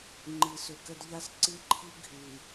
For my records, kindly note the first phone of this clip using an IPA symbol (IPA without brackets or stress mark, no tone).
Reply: ŋ͡ǃ